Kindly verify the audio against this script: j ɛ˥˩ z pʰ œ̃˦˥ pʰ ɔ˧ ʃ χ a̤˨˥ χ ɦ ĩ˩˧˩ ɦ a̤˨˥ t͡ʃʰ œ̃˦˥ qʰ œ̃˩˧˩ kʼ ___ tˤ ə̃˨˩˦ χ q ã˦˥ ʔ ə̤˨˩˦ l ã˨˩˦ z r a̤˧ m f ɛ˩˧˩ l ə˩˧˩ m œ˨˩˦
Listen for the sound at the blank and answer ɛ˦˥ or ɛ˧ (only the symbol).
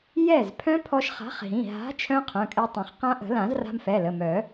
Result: ɛ˧